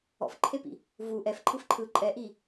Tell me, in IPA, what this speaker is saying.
ɔ̰ f ǃʰ e p ḭ | v u ʔ ɛ f ǃʰ ɯ f ǃʰ ɯ ǃʼ ɛ ʔ i

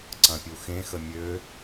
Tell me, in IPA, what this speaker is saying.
ǀ ɐ̃ pʲ u x ẽ x ə mʲ ø

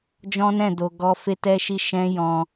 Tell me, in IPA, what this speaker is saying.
d͡ʒ ɔ̃˦ n ɛ̃˦˨ d o˨ ɡ ɔ˧ f e˦ t ɛ˦ ʃ i˦ ʃ ɛ̃˦ j ɔ̃˧

